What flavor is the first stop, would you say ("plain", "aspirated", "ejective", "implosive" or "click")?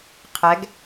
aspirated